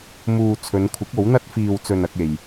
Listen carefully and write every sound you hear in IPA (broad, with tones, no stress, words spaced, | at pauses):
muː˨ t͡sʰɵ˨˧nkʷʰɪ˨˥k̚o˨˥w n̪ɐ˧t̚fiː˨wt͡sɵ˨n ɐ˧k̚e˨j